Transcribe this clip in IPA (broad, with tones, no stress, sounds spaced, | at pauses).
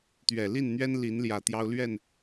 t̪ ɥ ɛ˨˩ l i˥˨ n n̪ ɥ ɛ˦ n l i˨˦ n l j ä˨˩ t̪ j ɑ˦ ʊ̯ l ɥ ɛ˥˨ n